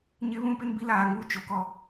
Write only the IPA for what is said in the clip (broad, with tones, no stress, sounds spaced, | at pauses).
ɲ ɪ˦ β ũ˦ p ɪ˦ n b i˦ l aː˨ ŋ uː˦ t͡ʃ o˨ k ɔ˦